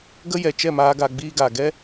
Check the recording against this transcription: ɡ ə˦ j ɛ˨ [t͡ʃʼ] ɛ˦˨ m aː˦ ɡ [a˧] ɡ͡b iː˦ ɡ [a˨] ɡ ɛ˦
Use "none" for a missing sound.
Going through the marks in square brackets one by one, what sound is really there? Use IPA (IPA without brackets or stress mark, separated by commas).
t͡ʃ, a˧, a˨